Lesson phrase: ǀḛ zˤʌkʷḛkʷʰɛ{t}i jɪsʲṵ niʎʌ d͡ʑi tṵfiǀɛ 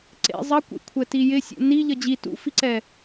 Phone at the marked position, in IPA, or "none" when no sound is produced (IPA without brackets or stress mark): t